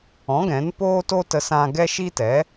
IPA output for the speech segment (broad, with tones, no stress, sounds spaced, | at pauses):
ɔ̃˨˦ ɡ ɛ̃˨˦ n p oː˦ t o˦ t ə˧ s ã˧ ɡ ɛ˦ ʃ i˦ t ɛ˨˦